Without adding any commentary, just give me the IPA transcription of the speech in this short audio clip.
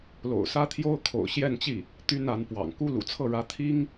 l o̰˨˩ ʊ̯ s ä˥ t̪ʰ j o˥ ʊ̯ kʰ o̰˨˩ ʊ̯ ɕ j ɛ˥˧ n t͡ɕ i˥˩ | t̪ y˥ n a˧˥ n p w ɑ̰˨˩ ŋ k u˥ l ṵ˨˩ t͡sʰ ɤ˥˩ ɻ ä˧˥ t̪ʰ i˥ ŋ

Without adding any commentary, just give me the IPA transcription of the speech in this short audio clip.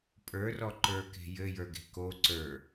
pʼ ə˞ r ɔ ǃ ə˞ k e̤ j ɘ j ə˞ ɡ e̤ k o ǀ ə˞

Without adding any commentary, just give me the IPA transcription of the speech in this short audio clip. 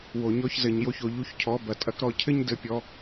w o˨ ɲ ɔ˧ ç z ɘ˨ ɲ j o˧ ç o˨ ʎ u˧ ç cʰ ɔ˨˦ b ɐ˨ tʼ ɐ˧ k ɾ ɔ˦˨ cʰ ɘ˦ ɲ d ɘ˧ pʲ ɔ˧

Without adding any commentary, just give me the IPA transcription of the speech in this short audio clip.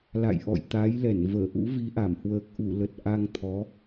l a̰˧˨ j ʔ ɔ̰˧˨ j t̪ a˨˦ j l ɛ˧˩ n v əː˧˩ ʔ ṵ˧˥ v i˨˦ ʔ a˧˩ m h w əː˨˩ k̚ ʔ u˧˩ l ə˨˩ t̚ ʔ a˧ ŋ t̪ʰ ɔ˨˦

